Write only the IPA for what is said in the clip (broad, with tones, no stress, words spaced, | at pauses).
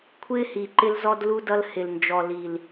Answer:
kʷʰɪː˦hi˨ ǃɪ˦lzɔ˦dlu˦dʌ˦l hɪ˨l nd͡ʒɔ˨li˨l